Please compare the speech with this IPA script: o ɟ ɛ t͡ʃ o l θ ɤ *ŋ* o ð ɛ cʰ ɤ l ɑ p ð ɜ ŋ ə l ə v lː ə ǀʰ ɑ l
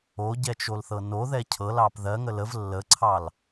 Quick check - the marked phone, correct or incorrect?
incorrect